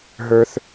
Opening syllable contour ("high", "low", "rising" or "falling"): high